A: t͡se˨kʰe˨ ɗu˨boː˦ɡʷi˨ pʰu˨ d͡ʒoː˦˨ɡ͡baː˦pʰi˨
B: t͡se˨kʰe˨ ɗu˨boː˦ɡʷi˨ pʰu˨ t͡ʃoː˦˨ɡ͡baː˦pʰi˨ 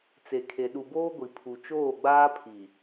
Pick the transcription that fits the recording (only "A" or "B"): B